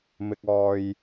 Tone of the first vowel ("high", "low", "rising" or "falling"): low